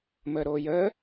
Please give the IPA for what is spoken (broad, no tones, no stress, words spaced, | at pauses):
məːɾoːjəː